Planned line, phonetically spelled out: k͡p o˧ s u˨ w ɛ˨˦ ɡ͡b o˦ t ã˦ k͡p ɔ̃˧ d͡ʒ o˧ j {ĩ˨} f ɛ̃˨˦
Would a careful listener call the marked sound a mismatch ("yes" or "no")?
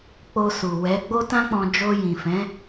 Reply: no